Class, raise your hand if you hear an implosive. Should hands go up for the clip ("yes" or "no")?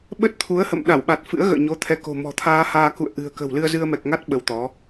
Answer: yes